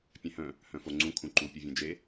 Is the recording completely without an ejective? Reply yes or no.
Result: yes